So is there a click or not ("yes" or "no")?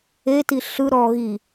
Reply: no